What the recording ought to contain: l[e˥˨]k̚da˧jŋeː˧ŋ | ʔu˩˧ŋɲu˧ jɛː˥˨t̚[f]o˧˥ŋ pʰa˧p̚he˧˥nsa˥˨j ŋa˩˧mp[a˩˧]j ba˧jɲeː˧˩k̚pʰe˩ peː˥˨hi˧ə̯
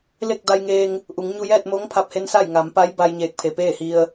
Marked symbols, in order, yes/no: yes, no, no

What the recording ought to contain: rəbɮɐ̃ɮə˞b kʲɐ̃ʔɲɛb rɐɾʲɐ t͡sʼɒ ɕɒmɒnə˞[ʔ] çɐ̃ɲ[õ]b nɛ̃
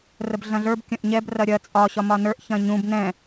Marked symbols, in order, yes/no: yes, no

